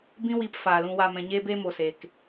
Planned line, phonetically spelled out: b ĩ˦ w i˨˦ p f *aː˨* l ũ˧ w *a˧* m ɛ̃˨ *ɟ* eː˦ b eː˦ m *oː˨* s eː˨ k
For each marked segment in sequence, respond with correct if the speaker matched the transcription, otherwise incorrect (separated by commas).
correct, correct, incorrect, incorrect